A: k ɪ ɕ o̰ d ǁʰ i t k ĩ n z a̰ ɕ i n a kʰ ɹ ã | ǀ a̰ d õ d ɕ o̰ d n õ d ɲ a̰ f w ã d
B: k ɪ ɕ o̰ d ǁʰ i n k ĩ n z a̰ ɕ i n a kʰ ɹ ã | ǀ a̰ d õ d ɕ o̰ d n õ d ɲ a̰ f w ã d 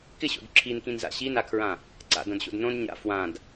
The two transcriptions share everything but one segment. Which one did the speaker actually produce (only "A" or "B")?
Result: B